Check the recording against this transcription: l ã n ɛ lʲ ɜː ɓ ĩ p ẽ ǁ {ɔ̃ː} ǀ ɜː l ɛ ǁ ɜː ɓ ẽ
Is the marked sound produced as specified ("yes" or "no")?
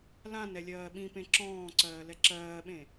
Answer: yes